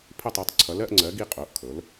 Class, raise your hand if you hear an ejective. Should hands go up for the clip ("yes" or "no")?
yes